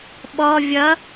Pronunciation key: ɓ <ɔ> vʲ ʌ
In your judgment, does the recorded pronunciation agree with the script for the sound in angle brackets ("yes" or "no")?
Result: yes